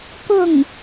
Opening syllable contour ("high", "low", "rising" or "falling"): falling